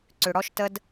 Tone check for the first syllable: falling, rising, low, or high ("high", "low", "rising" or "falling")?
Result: low